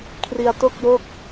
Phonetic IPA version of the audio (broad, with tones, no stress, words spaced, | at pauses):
kʰri˧a̯to˥˩k̚jo˥˩k̚